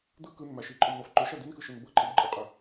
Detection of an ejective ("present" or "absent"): present